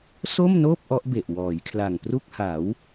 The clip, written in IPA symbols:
s o˥˩ m n oː˥˩ p̚ ʔ ɔ˦˥ ʔ b e˨˩ ʔ w ɔː˩˦ j kʰ l a˨˩ ŋ p r u˥˩ k̚ h a˩˦ w

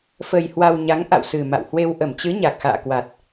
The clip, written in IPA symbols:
f ə˧ j h w a˧ w ɲ a˨˦ ŋ ʔ a̰˧˨ w s ɨ˨˩ m a̰˧˨ w h w e˧ w ʔ ə˧˩ m t͡ɕ ɨ˨˦ ɲ a˨˩ k̚ x a̰ː˧˨ k w a˨˩ t̚

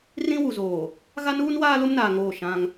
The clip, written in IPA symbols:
r ĩ˦ w u˨ z oː˨ | ɣ a˦ n uː˦ n w aː˦ l ʊ˦ m n aː˨ ŋ oː˦˨ ʃ ã˦ ŋ

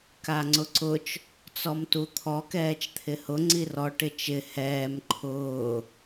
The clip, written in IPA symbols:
k a ŋ͡ǀ ʊ ǀ ʊ t͡ʃ | t͡s ɔ m t u t̪ʰ ɔ k ɛː t͡ʃ t̪ʰ ɪ h ʊ ŋ͡ǀ i r ɔ ʈ ɪ t͡ʃ ɪ h ɛː m ǃʰ ʊː

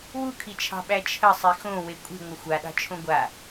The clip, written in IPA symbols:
w u kʰ i t͡ʃʰ ɑ̤ ɓ æ t͡ʃʰ ə sˤ i x õ w e kʷʼ i̤ ŋʷ ə xʷ a ɗ ɑ̤ t͡ʃʰ õ ɡʷ a

